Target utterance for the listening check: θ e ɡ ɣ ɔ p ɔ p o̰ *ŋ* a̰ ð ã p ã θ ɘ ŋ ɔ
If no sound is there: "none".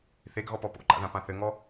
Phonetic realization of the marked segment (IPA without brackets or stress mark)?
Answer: ǃ